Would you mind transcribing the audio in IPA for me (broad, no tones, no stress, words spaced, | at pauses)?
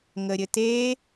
ŋəɾʲɘte